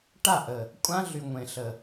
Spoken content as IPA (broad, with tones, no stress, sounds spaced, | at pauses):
ʈ a˦˨ ʔ ə˨ | kʷʼ ã˦ ɮ y˨ ŋʷ ẽ˨ ɬ ə˨